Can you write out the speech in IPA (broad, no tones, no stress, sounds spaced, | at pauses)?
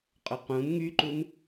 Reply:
qʼ ɵ q ũ n ŋ y ǃ u n